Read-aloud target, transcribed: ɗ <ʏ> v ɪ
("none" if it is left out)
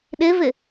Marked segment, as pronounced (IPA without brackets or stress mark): ɪ